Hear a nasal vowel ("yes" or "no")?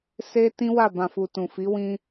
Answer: yes